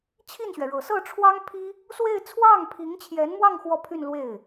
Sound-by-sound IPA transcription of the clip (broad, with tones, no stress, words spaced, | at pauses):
t͡ɕʰi˥˩nɕɥɛ˩ɻɤ˨˩ sɤ˥˩ʈ͡ʂʰwɑ˥ŋpʰi˥ | swe˥˧ɪ̯ t͡sʰwɑ˥˩ŋpʰi˧˥ŋt͡ɕʰjɛ˧˥nmwɑ˥˧ŋ xwɔ˥˧pʰy˥˧nlwe˥˩ɪ̯